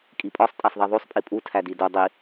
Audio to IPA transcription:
kʼ i pʼ ɒ sˤ tʼ æ sˤ ðˤ i ðˤ o sˤ pʼ i pʼ u tʰ æ d i d o dˤ i

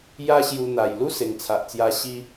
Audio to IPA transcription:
j a˦ ɕ j u˧ n̪ a˨˩ j l u˦ s e˨˩ ŋ t͡sʰ a˨ ʔ t͡s j a˧ ɕ i˦

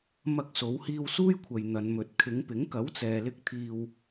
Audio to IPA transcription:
m ɐ˧ k̚ s o˨˧ w h iː˧ w s uː˥ j kʷʰ ɐ˨ j n̪ ɐ˨˧ n m ɵ˨˥ t̚ kʰ ɪ˨˧ ŋ p ɪ˨˥ ŋ k ɐ˨˥ w t͡s ɛː˨ l ɪ˧ k̚ t̪ʰ iː˨ w

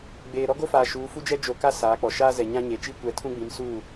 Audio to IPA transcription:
ɡ͡b eː˨ ɾ ɔ˦ ɡ o˦ f aː˨ ʃ uː˨˦ f u˦ d͡ʒ ɛ˦ d͡ʒ o˨ k a˦ s aː˨˦ k͡p ɔ˨ ʃ aː˦ z ɛ˨ ɲ ã˦ ɲ e˨ t͡ʃ i˦ kʷ ɛ˨˦ tʰ ũ˦ ɡ͡b ĩ˨˦ m s uː˦˨

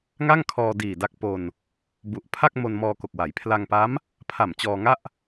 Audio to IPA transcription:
ŋ a˥˩ ŋ kʰ ɔː˧ d iː˨˩ d a˦˥ k̚ p o˧ n | b u˨˩ ʔ pʰ a˥˩ k̚ m o˧ n m ɔː˧ k o˨˩ k̚ w a˩˦ j pʰ l a˧ ŋ p a˦˥ m | pʰ a˨˩ m t͡ɕ ɔː˧ ŋ a˥˩ ʔ

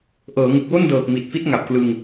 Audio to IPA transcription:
ʔ ɤː˩˦ ŋ ɯ˨˩ k̚ w o˥˩ n d ɤː˨˩ k̚ m i˨˩ t̚ f i˦˥ t̚ ŋ a˨˩ p̚ k l ɯ˧ ŋ

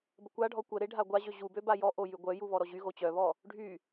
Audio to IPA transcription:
b ə kʷ a ɖʱ ɔ kʷ ə ɾ e ɖʱ a ɡʷ a ʑ ø ʑ u b ø b a j ɔ ʔ o j y ɡʷ œ j u β ɔ ɾ ɔ ʑ y ɣ o t͡ɕ œ β ɔ | ɖʱ y

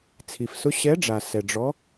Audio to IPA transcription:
t͡sʰ i˩ f s ʊ˧˥ ɕ ɛ˧˥ ɖ͡ʐ a˩ s ɛ˩ ɖ͡ʐ ɔ˧˥

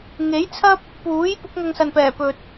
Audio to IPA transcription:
ŋ e˨˥ j t͡sʰ ɐ˥ p̚ | p uː˨˥ j p ʊ˨˥ k̚ ŋ ɐ˧ ŋ s ɐ˨ n p ɛː˨˩ p ɵ˨ t̚

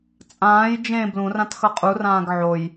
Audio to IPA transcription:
t͡sʼ ãː j d͡ʒ ẽ b l ũ r ã t x ʌ qʼ u r ãː ɡ ʕ o j

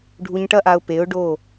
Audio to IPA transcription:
ɖʱ u˧ ɲ ʈ ɐ˦ ʔ a˧ ʊ̯ p e˨˦ ʊ̯ ɖ o˦˨

